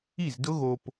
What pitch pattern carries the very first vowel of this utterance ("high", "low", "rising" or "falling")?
falling